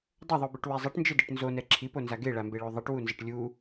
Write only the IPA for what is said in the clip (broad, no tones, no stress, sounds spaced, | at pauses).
dˤ ʌ ðˤ u b ɯ ʈ w ɛ zˤ e ʈ n d͡ʒ e d i ʈ n z o n ɛ ǁʰ i p o n z a ɡ e ɭ a m b e ɭ o ðˤ i ʈ w u n z ʌ ʈ lʲ u